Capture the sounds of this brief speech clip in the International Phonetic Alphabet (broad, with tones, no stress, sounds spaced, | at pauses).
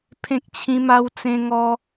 pʰ ẽ˦ k̚ t͡ɕʰ ĩ˦ m a˦ w t͡s ẽ˦ ŋ ɔ˦